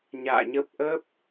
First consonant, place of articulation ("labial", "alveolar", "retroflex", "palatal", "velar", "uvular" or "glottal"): palatal